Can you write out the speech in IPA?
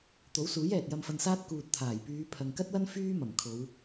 t̪ o˨˥ w s uː˨˥ j ɛː˨ t̚ j ɐ˧ m f ɐ˧ n s aː˥ t̚ k uː˨ t̚ t̪ʰ aː˨˩ j p yː˨˧ pʰ ɐ˨ ŋ k ɐ˥ t̚ w ɐ˥ n f yː˥ m ɐ˨˩ m kʰ o˨˧ w

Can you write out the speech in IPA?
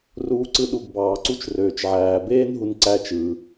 r uː˨ ǀ ɯ˨ ɗ u˩ ɡ b ɑː˩ ǀ u˦ t͡ʃ r øː˩ t͡ʃ ʕ æː˩ b eː˥ n ɦ u˨ n ǀ æ˦ t͡ʃ ɯ˩

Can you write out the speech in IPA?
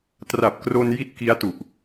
t r a˨˩ p̚ k r o˧ n j i˥˩ t̚ k i˦˥ a̯ t u˨˩ ʔ

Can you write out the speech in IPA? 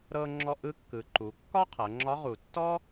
ɾ ɤ˧ ŋ͡ǁ ɔ˧ ʔ ɯ˧˥ kː ɯ˩˧ ǃ u˩˧ kː ɒ˥ qʰ ɤ˩˧ ŋ͡ǁ ɒ˧˥ ʁ u˩ tː ɔ˥

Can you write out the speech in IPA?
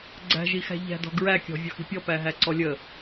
ɡ͡ǀ æ̤ ʒ i x æ̤ ʎ æ̤ d ɔ̤ ɡ ɹ æ kʲ ɔ̤ vʲ ɔ x i̤ pʲ ɔ p æ ɦ æ ǀ ɔ lʲ ə

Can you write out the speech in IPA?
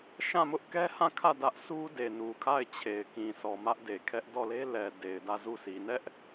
ʃ ã˦˨ m ʊ˦ ʔ k ɛ˦ h ã˦˨ kʰ ä˦˨ d ä˦ ʔ sʰ u˦ d e˨ n u˨ kʰ a˦˨ ɪ̯ t͡ɕʰ e˨ ɪ̯ k ĩ˨ sʰ ɔ˨ m ä˦ ʔ d e˨ kʰ ɛ˦ ʔ d ɔ˦˨ l e˦ l ɛ˨ d e˨ ɪ̯ d ä˦˨ z u˦˨ s i˨ n ɛ˦ ʔ

